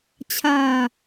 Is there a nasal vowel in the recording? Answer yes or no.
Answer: no